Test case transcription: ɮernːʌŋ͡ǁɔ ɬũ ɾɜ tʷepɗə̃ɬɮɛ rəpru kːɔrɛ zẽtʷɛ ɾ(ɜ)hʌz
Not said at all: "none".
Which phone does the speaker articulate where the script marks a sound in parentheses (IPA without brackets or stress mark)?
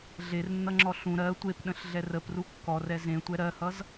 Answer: ɜ